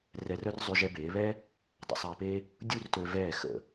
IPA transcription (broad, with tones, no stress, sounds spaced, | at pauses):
r ɛ˧ r œ˥ r zˤ y˧ ʒ ɛ˧ b eː˩˧ β ɛ˥ | dˤ ə̰˧ sˤ ɛː˧ p e˥ | dʲ u˥˧ r t ø˧ v ɛː˧˩ x ə̰˧˩